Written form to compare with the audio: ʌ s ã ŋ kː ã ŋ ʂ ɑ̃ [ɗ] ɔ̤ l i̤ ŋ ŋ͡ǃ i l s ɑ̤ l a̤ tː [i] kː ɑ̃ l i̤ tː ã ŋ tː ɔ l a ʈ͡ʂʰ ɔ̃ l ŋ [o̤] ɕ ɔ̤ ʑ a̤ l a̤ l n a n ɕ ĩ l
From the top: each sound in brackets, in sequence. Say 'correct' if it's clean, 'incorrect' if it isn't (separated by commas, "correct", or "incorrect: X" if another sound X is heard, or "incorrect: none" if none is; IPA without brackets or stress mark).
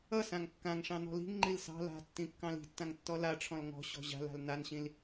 incorrect: n, incorrect: ĩ, incorrect: ɔ̤